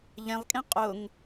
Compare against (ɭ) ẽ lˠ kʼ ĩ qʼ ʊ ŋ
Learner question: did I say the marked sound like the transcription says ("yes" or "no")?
no